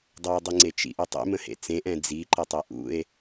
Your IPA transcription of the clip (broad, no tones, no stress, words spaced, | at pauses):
dˤʌo̯dˤiŋ͡ǀet͡ʃḭ ʔutˤḛmə̃ hḛt͡sẽʔɛ̃ d͡ziǃə tˤɛʔṵe̯